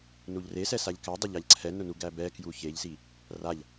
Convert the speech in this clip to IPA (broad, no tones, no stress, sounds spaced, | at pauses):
n u ʎ r e s ɛ s a ʎ k æ dˤ ʊ ʎ a ʎ ǀʰ ɛ n ʊ n u ɡ æ b ɛ k j u ç e ʎ s i | r a ʎ